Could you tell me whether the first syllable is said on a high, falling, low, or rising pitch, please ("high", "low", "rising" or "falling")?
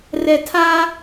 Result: low